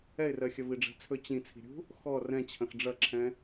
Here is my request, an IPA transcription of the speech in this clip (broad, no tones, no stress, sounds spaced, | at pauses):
ɛ ɪ̯ r ɜ xʲ ɐ v i ɖ͡ʐ ɛ̤ t͡sʰ ɵ t͡ɕ ĩ t͡sʰ i̤ ɾʲ ṳ | x ɔ r ɛ̃ t͡ɕʰ ɐ̃ x ɖ͡ʐ ɐ ǁʰ ɛ̃